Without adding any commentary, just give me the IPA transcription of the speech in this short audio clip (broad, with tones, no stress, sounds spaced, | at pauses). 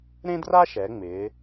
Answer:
ɾ ẽ˥ d r a˥ ʃ ɛ˩˧ ŋ͡m ɪː˩˧